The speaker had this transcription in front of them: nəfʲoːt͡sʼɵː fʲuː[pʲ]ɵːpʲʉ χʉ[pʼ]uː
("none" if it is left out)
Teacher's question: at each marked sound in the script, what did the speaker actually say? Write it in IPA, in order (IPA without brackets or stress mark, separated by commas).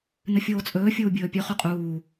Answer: bʲ, qʼ